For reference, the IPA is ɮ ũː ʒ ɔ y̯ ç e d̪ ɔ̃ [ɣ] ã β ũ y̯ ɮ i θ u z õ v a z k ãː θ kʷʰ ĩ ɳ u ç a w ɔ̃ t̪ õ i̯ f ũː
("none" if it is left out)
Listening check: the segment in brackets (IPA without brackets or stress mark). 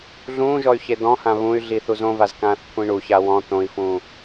h